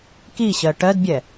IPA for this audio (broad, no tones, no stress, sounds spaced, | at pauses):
k i ɕ ɜ ʈ ɜ d bʲ ɛ